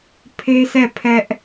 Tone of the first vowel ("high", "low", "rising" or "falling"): high